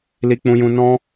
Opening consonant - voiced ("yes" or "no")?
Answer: yes